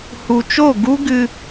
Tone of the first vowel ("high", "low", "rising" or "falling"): low